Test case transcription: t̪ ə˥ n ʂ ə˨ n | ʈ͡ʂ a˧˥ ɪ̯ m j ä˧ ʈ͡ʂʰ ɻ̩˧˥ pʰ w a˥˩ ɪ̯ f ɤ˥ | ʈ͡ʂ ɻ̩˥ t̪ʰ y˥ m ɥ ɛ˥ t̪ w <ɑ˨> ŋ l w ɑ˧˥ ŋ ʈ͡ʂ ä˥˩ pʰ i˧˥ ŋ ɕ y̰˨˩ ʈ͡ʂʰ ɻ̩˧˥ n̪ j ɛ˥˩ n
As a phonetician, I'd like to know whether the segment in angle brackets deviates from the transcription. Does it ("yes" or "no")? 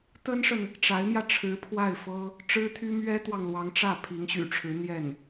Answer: no